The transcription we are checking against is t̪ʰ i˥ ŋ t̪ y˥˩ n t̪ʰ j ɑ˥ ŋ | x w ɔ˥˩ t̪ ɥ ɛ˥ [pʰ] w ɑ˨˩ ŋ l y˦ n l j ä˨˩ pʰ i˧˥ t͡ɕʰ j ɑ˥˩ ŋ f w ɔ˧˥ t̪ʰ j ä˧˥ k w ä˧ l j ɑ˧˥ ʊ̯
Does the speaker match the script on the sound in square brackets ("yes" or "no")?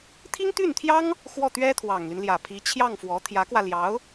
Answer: no